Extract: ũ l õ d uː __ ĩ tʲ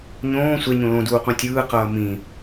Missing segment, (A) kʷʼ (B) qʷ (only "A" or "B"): B